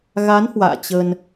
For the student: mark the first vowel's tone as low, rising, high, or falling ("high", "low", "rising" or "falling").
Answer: rising